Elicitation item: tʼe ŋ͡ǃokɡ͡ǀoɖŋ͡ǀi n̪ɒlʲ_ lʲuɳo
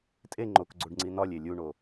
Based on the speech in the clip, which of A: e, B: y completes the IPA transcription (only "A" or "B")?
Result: A